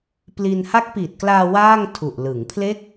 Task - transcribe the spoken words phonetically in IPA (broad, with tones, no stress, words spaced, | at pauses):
pli˧n ha˦˥k̚piː˨˩t̚klaː˧ waː˥˩ŋ tʰu˨˩ʔ lɯ˩˦ŋpʰle˥˩k̚